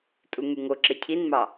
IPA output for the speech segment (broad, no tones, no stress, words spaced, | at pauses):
tʼuŋyŋoǁe cʰinmɑ